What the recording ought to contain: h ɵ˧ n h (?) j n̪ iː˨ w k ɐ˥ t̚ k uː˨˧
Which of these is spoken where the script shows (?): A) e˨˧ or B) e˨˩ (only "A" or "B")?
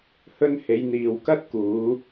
A